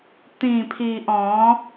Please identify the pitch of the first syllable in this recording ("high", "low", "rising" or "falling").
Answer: low